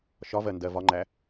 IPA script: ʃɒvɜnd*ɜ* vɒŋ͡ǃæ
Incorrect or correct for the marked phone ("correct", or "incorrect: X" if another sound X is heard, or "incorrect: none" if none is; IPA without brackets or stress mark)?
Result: correct